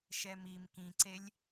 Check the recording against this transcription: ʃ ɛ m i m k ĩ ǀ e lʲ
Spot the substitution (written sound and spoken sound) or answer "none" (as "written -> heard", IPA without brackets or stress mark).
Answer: none